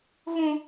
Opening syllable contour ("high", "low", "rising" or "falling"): high